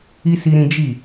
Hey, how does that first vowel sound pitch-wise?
high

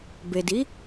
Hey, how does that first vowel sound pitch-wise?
low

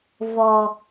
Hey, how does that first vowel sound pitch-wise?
low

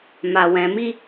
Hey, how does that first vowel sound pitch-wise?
low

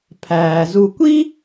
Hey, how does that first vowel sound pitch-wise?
low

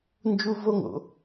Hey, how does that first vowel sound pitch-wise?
high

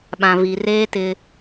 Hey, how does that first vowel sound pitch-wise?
low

